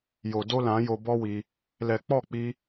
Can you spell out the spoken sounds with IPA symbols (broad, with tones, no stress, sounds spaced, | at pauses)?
j o˨ d o˦ l ã˨˦ j o˧ b ɔ˦ w i˧ | l ɛ˨ k͡p ɔ˦˨ k͡p i˧